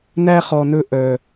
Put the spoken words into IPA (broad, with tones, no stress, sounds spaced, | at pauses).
n æ˦ χ ɔ˨ n ɵ˧ ʔ œ˨